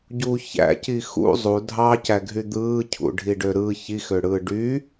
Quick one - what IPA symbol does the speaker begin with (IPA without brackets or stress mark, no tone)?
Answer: ɟ